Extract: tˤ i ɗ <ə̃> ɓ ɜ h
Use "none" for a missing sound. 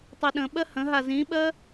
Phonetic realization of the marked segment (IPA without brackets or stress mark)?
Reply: ə̃